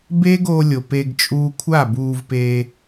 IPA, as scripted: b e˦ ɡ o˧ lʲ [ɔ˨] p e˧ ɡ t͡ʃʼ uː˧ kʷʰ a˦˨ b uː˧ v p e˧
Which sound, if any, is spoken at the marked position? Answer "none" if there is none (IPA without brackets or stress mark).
o˨